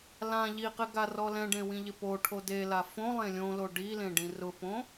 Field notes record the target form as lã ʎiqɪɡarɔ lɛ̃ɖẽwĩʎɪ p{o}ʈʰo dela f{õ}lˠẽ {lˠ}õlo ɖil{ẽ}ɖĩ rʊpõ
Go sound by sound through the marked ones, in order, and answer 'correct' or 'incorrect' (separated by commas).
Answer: correct, correct, incorrect, correct